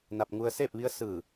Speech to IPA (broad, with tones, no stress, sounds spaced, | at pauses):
n a˧ p̚ ŋ u˧ ə̯ s eː˥˨ p̚ ʋ i˧˥ ə̯ s ɯː˧˩